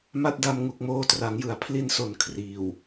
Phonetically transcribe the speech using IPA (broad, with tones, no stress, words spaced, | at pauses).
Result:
ma˦˥t̚da˧m ŋu˨˩k̚moː˧tra˩˦ŋjɯ˩˦a̯ pʰli˧nso˨˩n kʰriː˨˩w